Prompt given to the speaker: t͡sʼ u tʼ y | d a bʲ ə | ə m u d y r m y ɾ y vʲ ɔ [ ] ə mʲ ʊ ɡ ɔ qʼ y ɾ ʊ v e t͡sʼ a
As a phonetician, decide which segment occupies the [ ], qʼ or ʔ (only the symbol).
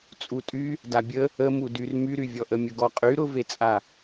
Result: ʔ